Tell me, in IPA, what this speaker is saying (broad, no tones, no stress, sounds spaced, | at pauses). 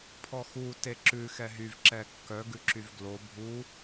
pʰ ɔ x u t e ǁ ʉ x ɛ ɦ y v ǁ ɛ kː œ ɡ ʉ ǁ y v ɡ l o bʱ u